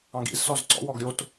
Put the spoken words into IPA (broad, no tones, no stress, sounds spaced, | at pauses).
ɑ̃ ɡ ḭ z s ɔ z ǀ ɔ̰ w ɔ ɡ ɾʲ o t